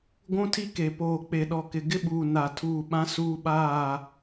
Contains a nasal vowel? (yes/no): yes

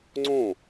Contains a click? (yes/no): yes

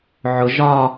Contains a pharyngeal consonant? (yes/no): yes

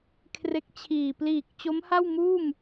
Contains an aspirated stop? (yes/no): yes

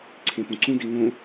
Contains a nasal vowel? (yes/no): yes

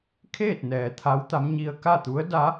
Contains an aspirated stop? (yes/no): yes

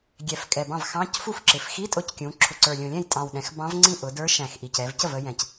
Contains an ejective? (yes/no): yes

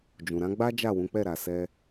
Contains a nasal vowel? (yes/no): yes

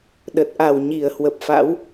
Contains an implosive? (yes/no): yes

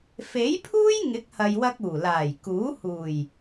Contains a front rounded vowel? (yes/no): no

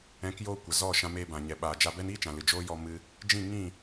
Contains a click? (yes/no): no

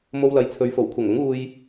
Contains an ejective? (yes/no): no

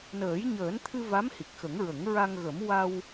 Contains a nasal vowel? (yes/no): no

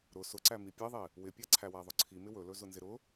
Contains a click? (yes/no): yes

